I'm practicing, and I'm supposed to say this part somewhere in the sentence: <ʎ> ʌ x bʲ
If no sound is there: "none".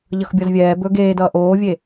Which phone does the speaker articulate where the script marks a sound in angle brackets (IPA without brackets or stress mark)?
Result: ʎ